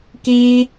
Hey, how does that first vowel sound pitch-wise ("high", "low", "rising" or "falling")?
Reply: low